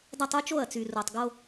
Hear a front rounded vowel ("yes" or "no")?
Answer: yes